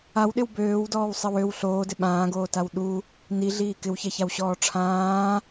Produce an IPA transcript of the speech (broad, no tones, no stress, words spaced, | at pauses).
awɗɪw bøːwdɔːwsˤɪw øw ɬoːdɪ ɓãːɡoːtaw ɗu | niɮiː kɪwçɛçawɕɔː ʈ͡ʂʰãː